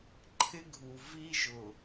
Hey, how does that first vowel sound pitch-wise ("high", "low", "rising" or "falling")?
high